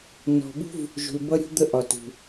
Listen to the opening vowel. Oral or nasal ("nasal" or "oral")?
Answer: oral